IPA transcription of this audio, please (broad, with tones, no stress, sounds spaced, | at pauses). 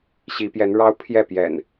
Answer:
ɕ i˨˦ p j ɛ˨˦ n ɻ ɑ˦ ʊ̯ pʰ j ɛ˥˨ p j ɛ̰˨˩ n